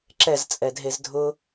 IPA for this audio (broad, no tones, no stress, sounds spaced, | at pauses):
ǁ ɛ z t͡sʼ ɛ dʱ e z dʱ ʊ